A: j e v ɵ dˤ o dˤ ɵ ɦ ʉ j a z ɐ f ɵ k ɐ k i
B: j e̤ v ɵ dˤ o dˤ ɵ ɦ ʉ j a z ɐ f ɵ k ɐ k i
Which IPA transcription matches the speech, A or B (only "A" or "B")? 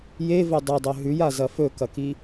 A